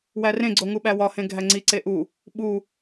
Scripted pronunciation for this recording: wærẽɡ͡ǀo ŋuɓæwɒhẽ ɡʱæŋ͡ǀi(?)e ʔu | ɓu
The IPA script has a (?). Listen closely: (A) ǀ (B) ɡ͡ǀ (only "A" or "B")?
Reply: A